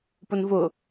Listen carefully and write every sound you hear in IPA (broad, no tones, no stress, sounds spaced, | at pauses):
p ʊ n v ʊ